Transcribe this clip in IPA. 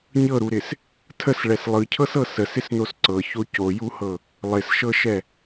ɲɤɾuɾɪs | tʰəsɭɛs lˠɯcʰɤsɤ səsɪsnos ǀɤço cojuhɤ | lˠɪsʃɤʃɛ

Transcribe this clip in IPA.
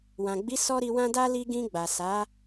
wã˨ɡ͡bi˨˦ sɔ˦ɾi˧wã˦da˦ li˧ɡĩ˧ ɡ͡ba˨sa˨˦

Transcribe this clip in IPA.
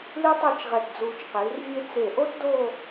li˥tˤe˥˧t͡ʃʁɛ˧˩t d͡zuː˧t͡ʃqiː˩˧rvʲe˥ t͡se˧˩ʔo˥tdoː˥˧

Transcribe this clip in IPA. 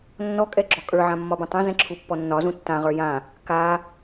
nːɔkʼɛ ɡ͡ǁɔkʼə˞ʕã mːɒbũtˤɛ̃zɛ̃ ǁʰupːɔnːɒzũ tːãʁə˞ jã | ka

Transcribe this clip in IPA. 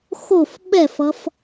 xof ɓɛfʌf

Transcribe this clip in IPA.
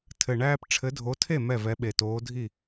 tʰɘ˨˩ɳæː˦p ʈ͡ʂʰɘ˨˦dʱo˨˦tʰe˥˩ mɛ˥˩vɛ˨˦ɓe˨˩ toː˨˦dʱi˥˩

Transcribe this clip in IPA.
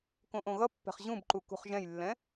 kõʔõɣʌpːɛ̤χ ʑũbǃu kṳχʒɛ̃jlːɛ̃

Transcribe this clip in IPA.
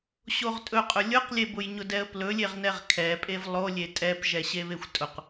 ɕoʁtʼɵqʼʊ lʲʊqlʲebʊj ɲʊdɛə̯plɵ lʲeʁnɛʁkʰɛpʼev lˠolʲe tʼɛpʒɛ ɕeβexʷtʼʊq

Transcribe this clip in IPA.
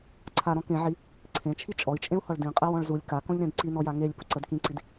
ǀʰaɾɔ̃ kẽʕi | ǀʰẽt͡ʃʰi t͡ʃʼɔi̯t͡ʃʼẽu̯hɔɭ dĩqʼe wɔ̃ɭzulʲ kakɔ̃ʎɾẽd ǀinɔja ŋelʲ puǀəd kĩǀid

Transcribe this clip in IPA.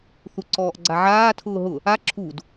θuǀɔːʔɡ͡ǀaʕaː tʰʊːɦʊ | a ǁʰud

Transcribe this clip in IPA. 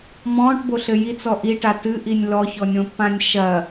mɔ̃ːʈboɬɘ jit͡sɔ ʔiʈa tɨʔinʲ lɔçɔnʲõpːãnʲ ʃɐ

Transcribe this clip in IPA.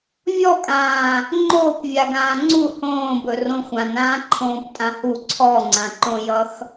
vʲɔkʼãː | ŋ͡ǃoːpvʲa ɡãːŋ͡ǀu hõːbɵ rõxʷãnãː ǃʰõːptʼãhu ǀʰɔŋ͡ǀãǃõjʌx

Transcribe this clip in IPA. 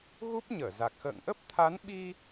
ɣu˦˥p̚ɲəː˧˩za˨˩k̚ xə̰ː˧˨ŋʔə˦˥p̚t̪ʰa˨˦nɓi˧

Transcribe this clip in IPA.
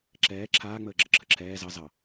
ǁɛː ǁʰaː ŋ͡məːɡ͡ǁəǁʰəǁʰɛː zɑ zɑ

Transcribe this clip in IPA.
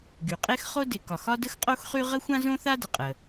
ɡy˩qʼe˥xχo˥ dɪ˩kɒ˩x ɒ˥də˥xqʼo˥xχy˥ ʁə˥xʷã˥zõ˥θa˥ də˩qʼə˩

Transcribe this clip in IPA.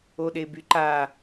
oɗebyǃa

